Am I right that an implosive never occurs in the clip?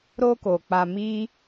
yes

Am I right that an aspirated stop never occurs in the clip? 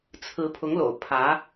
no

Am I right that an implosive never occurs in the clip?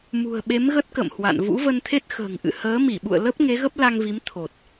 no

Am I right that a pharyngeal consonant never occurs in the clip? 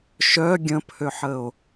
no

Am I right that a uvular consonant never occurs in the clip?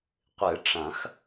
no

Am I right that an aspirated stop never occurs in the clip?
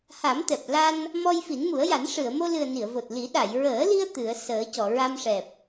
yes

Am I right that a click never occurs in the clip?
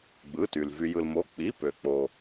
yes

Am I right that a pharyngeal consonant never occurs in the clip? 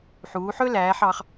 no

